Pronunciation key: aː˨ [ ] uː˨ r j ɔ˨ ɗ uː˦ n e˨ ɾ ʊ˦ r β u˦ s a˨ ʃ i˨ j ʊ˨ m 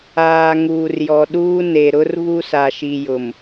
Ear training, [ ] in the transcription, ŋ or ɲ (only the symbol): ŋ